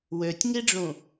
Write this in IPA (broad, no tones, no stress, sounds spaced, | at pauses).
w ø tʲ ŋ i ɖ͡ʐ ũ